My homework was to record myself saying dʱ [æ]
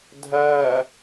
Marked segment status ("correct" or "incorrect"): correct